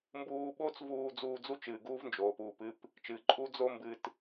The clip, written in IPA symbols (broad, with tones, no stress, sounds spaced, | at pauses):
m b uː˧ ɓ oː˥ t͡s v uː˧ d͡z uː˧ d͡z u˥ t͡ʃ ɨː˩ ɡ uː˥ v n d͡ʒ oː˩ p uː˩ p ɨ˥ p | t͡ʃ ɨː˩ ǃʼ u˥ d͡z o˥ m b ɨ˧ t